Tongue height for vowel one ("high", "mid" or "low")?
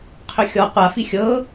high